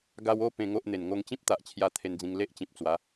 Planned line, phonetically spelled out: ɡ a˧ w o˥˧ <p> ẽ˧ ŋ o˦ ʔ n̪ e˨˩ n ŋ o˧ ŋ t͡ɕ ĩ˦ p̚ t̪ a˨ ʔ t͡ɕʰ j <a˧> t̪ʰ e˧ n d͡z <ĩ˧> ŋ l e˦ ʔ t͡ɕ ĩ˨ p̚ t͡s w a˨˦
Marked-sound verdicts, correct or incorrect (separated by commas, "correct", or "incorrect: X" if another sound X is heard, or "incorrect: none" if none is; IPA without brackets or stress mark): correct, correct, correct